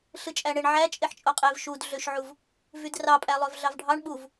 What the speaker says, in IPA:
ɬ ɯ t͡ʃʼ æ ɳ e ɳ ʕ æ t͡ʃʼ e ħ t͡ʃʼ o qʼ e v ʃ u d ɮ ø ʃ ʕ u v | v y d r ɑ pʼ æ lˠ ø v ɮ ɑ v ɖʱ ɑ ɳ ɓ u v

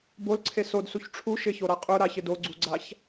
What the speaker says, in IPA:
b o l ǀʰ e s o d s u ç ʈ͡ʂʰ u ʃ ɪ ç o ɾ a qʼ ʊ ɾ a ç ɪ d o ɡ͡ǀ u ɡ͡ǀ a ç

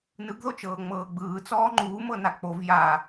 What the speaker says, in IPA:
n ɯ ɡ ð o t͡ʃ ɤː ŋ͡m ɤː ɡ͡b ɯː t͡s ɔː ŋ͡ǃ uː m ɤ n a k͡p o v j a

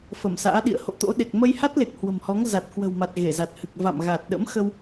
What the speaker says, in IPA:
f ə˧˩ m s a̰ː˧˥ ɗ ḭ˧˨ ə̯ h o̰˧˨ t̪ o̰˧˥ ɗ e˨˩ k̚ m ə˧ j h a˦˥ t̚ l e˨˩ k̚ h w ə̤˨˩ m h ɔ˨˦ ŋ z a˨˩ t̚ k w ə̤˨˩ w m a˨˩ t̚ ɣ e˧˩ z a˨˩ t̚ h ɨ˨˩ k̚ v a̰˧˨ m ɣ a˨˩ t̚ ɗ ə̰˧˥ m x ə˧ w

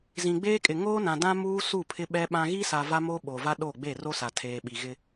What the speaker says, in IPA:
z ĩ˨ ɡ͡b eː˦ kʼ ɪ˨ ŋ oː˦ n ã˨ d ã˦ m uː˦ s u˦˨ pʰ ɪ˦ ɓ ɛ˦ ɓ ã˦ ɣ i˦ s a˨ v a˦ m oː˦ ɓ o˨ v a˦ ɗ o˦˨ ɡ͡b e˦˨ r o˦ s a˨ tʰ eː˨ ɓ i˨ ɣ ɪ˦

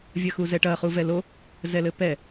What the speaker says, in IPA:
vʲ ɐ x u z ɛ ʈ ɐ χ u v ɛ l o | z ɛ l ɘ p ɛ

